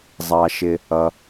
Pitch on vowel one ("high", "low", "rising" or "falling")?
low